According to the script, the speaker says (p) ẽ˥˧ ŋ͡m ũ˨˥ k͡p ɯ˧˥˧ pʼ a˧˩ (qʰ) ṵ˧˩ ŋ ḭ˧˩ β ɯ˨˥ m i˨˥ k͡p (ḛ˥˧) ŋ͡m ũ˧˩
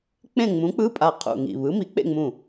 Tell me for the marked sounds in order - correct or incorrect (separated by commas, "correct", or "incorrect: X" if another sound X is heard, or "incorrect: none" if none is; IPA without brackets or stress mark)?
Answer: incorrect: k͡p, correct, correct